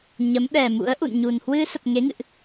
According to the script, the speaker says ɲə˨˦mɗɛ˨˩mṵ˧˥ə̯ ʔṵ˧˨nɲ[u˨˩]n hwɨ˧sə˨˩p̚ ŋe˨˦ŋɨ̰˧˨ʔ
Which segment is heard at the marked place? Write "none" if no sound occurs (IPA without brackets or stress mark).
u˨˩